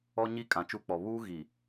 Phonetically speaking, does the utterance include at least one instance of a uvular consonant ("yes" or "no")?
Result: no